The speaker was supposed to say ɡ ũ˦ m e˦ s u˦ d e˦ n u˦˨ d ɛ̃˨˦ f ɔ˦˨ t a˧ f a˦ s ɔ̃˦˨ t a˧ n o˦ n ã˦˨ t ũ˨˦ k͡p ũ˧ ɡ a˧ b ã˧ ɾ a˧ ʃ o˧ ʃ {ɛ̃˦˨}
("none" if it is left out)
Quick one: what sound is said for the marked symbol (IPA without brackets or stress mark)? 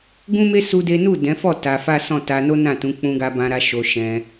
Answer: ɛ̃˧